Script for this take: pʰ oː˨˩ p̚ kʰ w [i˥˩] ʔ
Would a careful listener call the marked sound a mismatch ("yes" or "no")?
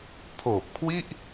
no